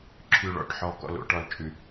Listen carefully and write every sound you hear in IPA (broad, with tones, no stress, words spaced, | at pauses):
ǁʰʉ˨ɭɔ̰˨ʈħɔ˨ kɔ̰˨lo̰˨ʈɔ˨l t͡ʃʼʉ˨